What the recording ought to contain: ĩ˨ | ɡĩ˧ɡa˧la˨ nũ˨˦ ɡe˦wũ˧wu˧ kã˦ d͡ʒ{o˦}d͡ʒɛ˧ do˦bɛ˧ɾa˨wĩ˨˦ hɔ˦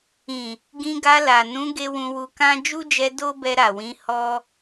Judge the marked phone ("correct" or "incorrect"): incorrect